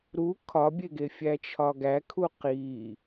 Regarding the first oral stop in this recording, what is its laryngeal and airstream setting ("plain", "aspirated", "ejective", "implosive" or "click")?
aspirated